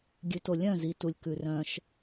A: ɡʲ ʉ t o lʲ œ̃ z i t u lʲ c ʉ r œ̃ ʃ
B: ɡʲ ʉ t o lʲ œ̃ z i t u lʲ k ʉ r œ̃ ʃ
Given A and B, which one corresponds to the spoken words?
B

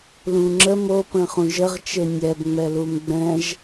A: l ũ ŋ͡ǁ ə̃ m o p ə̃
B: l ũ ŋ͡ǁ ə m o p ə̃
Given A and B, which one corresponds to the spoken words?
B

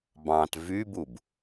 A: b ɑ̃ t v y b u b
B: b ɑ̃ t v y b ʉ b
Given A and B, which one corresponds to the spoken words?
A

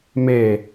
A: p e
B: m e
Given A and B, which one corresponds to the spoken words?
B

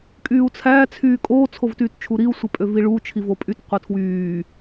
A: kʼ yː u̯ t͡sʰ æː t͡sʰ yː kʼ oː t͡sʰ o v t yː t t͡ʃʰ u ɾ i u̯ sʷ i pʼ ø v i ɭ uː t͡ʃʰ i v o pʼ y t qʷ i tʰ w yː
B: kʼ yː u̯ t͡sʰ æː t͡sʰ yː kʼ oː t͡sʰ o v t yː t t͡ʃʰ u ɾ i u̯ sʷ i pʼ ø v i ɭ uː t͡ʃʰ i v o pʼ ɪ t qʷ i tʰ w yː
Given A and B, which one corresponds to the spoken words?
A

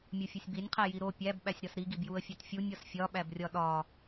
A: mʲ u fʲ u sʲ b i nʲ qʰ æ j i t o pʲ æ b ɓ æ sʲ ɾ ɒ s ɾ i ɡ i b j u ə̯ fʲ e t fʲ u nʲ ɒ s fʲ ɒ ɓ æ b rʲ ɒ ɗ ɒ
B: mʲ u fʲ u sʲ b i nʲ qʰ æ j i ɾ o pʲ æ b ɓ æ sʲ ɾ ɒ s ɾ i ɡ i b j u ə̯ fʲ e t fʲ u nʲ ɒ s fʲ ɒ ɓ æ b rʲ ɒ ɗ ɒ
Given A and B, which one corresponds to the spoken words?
B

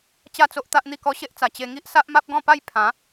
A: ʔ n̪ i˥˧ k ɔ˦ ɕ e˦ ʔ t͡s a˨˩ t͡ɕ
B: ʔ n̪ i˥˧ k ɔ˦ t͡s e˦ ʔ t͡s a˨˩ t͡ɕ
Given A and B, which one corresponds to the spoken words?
A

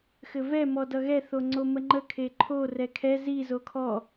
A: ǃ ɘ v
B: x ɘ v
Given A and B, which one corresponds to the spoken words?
B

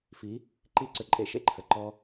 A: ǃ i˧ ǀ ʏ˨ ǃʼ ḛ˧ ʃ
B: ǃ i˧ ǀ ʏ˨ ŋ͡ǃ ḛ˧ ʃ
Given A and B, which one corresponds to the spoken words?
A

